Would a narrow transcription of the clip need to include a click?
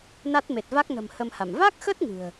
no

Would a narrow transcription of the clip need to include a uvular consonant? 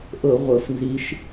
yes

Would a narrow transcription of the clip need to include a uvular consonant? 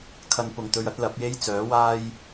no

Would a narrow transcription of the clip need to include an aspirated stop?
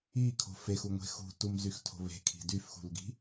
yes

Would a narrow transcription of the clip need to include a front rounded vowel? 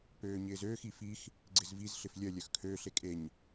yes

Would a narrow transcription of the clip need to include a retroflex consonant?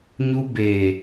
no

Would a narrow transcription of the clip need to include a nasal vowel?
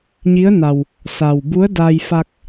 no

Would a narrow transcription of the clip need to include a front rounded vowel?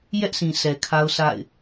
no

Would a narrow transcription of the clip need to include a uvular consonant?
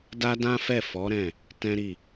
no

